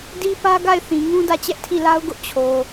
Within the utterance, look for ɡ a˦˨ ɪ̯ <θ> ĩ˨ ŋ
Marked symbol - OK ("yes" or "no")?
yes